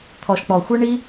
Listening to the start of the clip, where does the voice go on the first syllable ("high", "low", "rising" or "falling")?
low